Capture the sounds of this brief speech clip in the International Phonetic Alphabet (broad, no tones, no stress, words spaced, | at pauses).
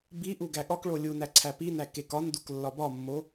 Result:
biʔu ɡæɠɒkɭo lʲunæ ǀʰæpinæ kekɒnduk lːɒbɒmːo